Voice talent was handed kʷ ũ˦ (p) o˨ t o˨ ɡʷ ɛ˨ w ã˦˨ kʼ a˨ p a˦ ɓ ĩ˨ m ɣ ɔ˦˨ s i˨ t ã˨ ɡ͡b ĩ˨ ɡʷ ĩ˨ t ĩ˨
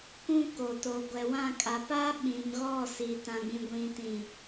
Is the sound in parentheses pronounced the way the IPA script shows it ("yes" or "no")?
no